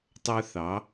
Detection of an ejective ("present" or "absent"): absent